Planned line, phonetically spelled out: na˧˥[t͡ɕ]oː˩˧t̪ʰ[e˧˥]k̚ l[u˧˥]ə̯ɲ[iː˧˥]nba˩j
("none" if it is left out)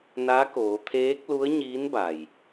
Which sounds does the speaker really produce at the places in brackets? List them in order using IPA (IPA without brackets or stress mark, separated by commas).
k, eː˧˥, u˧˥, iː˧˥